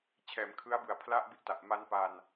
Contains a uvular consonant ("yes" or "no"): no